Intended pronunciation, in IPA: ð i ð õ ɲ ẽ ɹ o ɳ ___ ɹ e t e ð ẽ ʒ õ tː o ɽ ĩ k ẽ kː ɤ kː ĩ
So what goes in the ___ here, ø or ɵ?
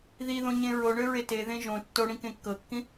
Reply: ø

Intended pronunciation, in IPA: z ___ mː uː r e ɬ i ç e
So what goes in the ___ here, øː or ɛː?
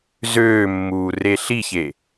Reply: øː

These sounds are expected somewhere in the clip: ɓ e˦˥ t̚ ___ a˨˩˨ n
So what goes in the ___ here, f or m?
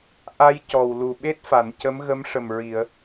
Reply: f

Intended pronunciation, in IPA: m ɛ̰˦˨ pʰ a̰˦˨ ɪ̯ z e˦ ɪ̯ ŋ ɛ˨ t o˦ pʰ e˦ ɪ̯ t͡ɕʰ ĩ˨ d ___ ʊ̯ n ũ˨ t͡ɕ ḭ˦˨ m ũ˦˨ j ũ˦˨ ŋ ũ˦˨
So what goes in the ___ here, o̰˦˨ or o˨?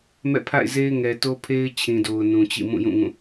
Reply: o˨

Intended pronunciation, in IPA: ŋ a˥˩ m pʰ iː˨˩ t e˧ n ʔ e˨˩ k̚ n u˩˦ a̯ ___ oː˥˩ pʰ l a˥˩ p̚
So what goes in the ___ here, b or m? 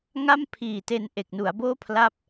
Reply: b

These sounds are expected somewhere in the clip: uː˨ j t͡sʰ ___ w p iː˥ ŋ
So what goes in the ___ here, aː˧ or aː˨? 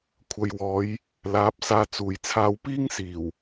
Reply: aː˧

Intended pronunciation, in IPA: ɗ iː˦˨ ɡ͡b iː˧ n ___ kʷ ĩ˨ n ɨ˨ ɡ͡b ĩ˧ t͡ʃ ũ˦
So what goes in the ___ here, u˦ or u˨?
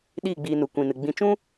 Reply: u˨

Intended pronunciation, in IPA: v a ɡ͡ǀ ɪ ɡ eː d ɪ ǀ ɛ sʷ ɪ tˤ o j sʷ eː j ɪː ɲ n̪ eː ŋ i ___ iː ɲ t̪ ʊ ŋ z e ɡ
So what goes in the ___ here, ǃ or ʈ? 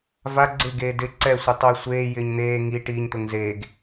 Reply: ʈ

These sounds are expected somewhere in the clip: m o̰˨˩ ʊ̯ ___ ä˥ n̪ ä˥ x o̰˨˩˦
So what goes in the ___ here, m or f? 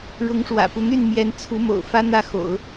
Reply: f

